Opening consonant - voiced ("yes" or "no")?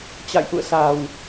no